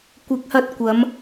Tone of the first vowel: rising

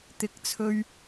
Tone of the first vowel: rising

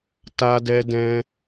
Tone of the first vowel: high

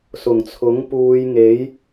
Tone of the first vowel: low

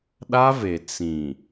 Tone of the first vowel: high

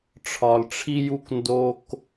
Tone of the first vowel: low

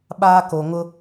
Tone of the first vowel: high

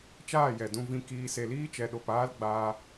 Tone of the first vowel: falling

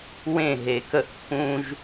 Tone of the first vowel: falling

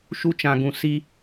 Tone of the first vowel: high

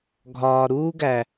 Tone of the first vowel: low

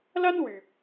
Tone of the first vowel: high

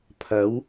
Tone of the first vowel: rising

